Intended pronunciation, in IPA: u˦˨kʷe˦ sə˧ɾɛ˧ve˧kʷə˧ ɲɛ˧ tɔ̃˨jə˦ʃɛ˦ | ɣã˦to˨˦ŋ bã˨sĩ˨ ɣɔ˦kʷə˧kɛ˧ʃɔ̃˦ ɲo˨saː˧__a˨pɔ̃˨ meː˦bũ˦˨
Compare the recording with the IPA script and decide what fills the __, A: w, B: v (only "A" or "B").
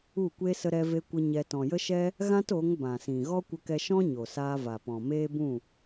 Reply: B